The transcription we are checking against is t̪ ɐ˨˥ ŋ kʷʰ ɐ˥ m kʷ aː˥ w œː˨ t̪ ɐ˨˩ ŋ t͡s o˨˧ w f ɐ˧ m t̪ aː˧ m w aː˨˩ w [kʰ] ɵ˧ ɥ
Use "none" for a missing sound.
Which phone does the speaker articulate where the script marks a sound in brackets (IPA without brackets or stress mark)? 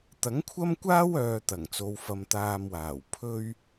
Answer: pʰ